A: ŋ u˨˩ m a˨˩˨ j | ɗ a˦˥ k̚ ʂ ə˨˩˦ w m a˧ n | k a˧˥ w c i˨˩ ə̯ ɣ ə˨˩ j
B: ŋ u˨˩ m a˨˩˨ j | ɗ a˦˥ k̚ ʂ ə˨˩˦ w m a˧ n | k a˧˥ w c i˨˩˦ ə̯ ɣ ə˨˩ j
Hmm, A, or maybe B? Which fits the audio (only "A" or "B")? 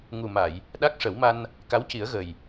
B